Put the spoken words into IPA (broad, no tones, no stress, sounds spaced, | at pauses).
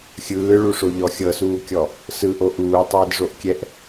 xʲ ɯː ɭ u ʂ o ʎ ɔ xʲ ɤ s uː kʲ ɔ | s ɯ ʔ o ʔ uː tˤ eː d ʐ o ʔ kʲ ɛ ʔ